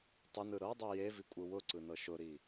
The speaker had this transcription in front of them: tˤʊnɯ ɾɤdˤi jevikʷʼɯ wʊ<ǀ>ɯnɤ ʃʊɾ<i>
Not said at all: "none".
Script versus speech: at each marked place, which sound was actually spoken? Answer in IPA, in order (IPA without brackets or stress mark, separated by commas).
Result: ǀ, i